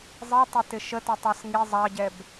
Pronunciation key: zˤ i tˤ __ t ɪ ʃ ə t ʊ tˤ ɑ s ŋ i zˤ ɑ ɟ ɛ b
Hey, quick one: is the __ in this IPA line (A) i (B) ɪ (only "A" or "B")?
B